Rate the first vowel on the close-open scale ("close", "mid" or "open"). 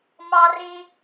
open